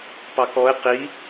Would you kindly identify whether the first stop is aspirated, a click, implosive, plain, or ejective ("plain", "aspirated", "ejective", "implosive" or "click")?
plain